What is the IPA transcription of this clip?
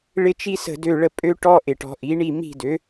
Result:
ɭ ɪ˥ t͡ʃ i˥ s ə̤˥˨ d ø˥˨ ɭ ə˥˨ pʼ ø˥ ʈ ɔ˥ ʔ ɪ˧˩˧ ʈ ɔ̤˩˥ ʔ i˩˥ ɳ i˥˨ m i̤˥˨ d ø˩˥

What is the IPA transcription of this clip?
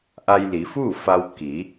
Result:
ʔ a˧ j l i˩˧ f uː˥˨ f a˧ w k i˩˧

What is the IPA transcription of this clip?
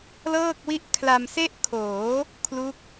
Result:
l ɤː˥˩ k̚ w i˥˩ ʔ kʰ l a˧ m s e˥˩ ʔ kʰ oː˩˦ | kʰ l u˦˥ k̚

